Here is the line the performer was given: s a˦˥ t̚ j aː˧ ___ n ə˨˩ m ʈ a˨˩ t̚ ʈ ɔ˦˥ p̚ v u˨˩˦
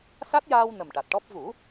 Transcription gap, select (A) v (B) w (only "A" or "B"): B